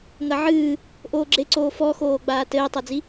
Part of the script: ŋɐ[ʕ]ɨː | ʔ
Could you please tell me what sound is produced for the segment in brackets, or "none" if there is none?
ʕ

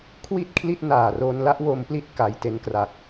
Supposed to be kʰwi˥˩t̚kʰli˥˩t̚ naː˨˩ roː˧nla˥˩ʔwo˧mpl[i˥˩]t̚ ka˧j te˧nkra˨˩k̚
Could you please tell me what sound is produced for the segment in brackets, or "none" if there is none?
i˦˥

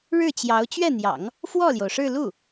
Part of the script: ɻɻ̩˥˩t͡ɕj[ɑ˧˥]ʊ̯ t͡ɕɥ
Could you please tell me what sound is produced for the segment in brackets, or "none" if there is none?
ɑ˧˥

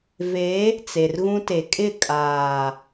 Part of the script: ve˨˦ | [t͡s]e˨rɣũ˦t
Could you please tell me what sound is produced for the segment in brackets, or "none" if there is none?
t͡s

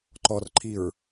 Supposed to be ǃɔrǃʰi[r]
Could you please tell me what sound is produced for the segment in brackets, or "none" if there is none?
ɹ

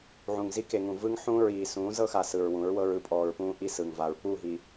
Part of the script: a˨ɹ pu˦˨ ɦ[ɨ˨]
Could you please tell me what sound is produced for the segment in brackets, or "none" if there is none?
i˨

